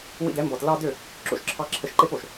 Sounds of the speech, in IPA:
w ḭ˧ d ɛ˨˦ m b ɔ˨ t l ɑ˧ d ø˦˨ | ǁ o̰˧ ʃ ǁʰ ɑ˧ ǁʰ ə˧ ʃ ǃ e˦ p o˨ ʃ

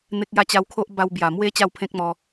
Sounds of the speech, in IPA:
n̪ e˦ k̚ j a˥˧ t͡ɕ a˧ w kʰ o˦ ʔ b a˧ w b j a˨˩ m w e˦ t͡ɕ a˥˧ w pʰ ẽ˦ k̚ m ɔ˧

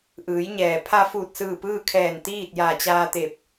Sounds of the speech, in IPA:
ʔ ɯː˩˧ j ɲ ɛː˩ pʰ a˧ f uː˧˩ t̚ s ɯː˧˩ p ɯː˥˨ kʰ ɛː˧˩ n t̪ iː˥˨ t̚ j a˧˩ t͡ɕ aː˧ t̪ e˧˩ p̚

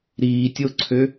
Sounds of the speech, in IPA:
ɾ iː tʲ o ǀʰ ø

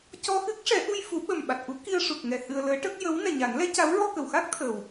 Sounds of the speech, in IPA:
c ɔ˧ x ɨ˦˥ k̚ ʂ ɛ˨˩˦ ʔ u˧ j f u˨˩˦ ɓ ə˨˩ m ɓ a˨˩ t̚ ʔ u˧˥ k i˧ ə̯ ʂ u˨˩ k̚ ŋ ɛ˨˩ h ɨ˧ ə̯ l əː˧˥ ʈ ə˦˥ k̚ j ə˧˥ w n ɛ˨˩ ɲ a˨˩˦ n l ɛ˧˥ c a˧˥ w ɹ ɔ˧ k ə˨˩˨ w x a˦˥ k̚ t̪ʰ əː˨˩ w

